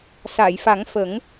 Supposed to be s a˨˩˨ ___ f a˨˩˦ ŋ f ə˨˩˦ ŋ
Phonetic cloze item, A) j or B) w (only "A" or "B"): A